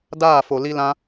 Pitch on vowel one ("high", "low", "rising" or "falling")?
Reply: falling